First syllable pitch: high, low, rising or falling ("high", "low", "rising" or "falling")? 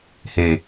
low